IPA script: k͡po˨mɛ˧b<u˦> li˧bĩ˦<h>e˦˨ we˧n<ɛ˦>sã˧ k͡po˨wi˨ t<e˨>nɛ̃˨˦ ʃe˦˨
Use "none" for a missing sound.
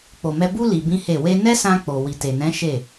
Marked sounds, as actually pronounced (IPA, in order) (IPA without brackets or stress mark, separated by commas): u˦, h, ɛ˦, e˨